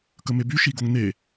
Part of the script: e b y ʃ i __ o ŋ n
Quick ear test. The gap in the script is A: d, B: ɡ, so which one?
B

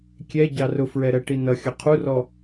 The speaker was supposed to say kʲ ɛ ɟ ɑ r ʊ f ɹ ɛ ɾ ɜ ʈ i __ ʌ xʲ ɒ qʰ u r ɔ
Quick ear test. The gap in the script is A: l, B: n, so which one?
B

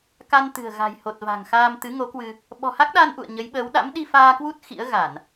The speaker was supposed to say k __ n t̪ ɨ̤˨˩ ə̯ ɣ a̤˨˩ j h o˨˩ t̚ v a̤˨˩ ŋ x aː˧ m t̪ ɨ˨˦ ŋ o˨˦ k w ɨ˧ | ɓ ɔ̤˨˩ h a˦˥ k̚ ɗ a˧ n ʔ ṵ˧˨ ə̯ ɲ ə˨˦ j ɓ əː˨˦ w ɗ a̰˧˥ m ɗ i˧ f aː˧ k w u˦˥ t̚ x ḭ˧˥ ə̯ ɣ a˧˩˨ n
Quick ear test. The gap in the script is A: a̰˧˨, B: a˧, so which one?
B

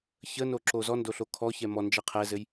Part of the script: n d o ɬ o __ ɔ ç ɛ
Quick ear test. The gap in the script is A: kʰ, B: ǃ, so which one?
A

